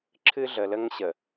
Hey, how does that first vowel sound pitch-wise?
high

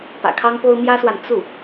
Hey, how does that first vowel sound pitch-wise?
low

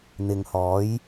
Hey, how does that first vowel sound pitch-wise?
low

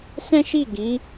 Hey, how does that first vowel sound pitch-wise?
high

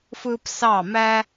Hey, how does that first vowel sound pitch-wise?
high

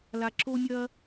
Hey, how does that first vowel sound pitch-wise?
low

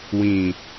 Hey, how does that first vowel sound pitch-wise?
low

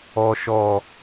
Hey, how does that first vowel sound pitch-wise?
low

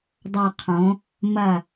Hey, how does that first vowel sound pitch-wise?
falling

